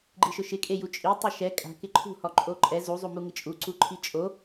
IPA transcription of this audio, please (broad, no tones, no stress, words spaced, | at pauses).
ɡ͡ǃiʃʊʃɪ kʼejut͡ʃʼi tˤɛʃɛ kʼa̤ kɪǃʰṳ hɔǃʼoǃʼɛ zu zˤumuŋɪt͡ʃʼu ǀuǃʰit͡ʃʼo